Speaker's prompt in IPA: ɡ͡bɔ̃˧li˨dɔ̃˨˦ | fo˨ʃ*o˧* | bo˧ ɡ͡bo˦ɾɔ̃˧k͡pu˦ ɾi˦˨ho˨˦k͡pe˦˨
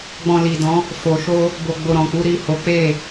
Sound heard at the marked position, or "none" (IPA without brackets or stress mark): o˧